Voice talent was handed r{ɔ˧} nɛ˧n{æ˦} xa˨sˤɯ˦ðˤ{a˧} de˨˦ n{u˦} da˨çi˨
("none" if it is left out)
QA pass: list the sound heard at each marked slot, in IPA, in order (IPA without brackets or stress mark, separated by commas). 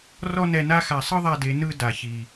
ɔ˦, a˦, a˧, ɯ˦